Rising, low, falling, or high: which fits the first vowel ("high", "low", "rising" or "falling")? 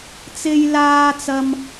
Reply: high